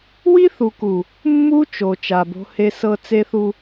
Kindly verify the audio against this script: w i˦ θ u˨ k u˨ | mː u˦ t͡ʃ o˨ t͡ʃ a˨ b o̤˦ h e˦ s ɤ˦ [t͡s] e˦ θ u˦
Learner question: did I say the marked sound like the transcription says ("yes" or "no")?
yes